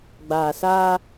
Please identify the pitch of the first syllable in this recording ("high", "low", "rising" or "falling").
low